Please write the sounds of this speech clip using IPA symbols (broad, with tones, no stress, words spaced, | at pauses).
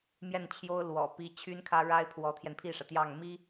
mjɛ˥˩nt͡ɕʰjo˥ʊ̯ lwɔ̰˨˩pi˧˥ t͡ɕʰy˥nkʰä˥ ɻa˥ɪ̯pʰwɔ˧˥t̪ʰjɛ˧n pʰi˥˩ʂä˩t̪jɑ˥˩ŋ mi˥